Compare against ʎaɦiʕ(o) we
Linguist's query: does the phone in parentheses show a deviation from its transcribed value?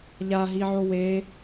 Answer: no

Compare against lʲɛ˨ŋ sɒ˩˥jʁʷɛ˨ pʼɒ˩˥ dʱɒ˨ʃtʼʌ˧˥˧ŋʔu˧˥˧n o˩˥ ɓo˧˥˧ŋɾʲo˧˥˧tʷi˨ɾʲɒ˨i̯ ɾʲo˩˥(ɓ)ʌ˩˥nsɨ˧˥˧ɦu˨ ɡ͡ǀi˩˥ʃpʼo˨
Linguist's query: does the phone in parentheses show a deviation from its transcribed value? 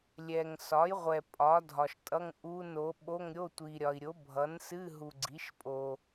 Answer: yes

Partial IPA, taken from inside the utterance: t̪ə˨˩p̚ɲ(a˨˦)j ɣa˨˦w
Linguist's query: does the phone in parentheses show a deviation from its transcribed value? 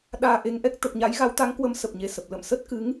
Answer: no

